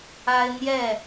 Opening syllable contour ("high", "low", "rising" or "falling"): high